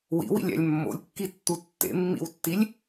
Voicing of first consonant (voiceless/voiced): voiced